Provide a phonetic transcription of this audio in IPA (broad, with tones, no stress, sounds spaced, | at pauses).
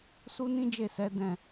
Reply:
s u˦ n ĩ˦ d͡ʒ e˦˨ s ɛ˨˦ d ɛ̃˦˨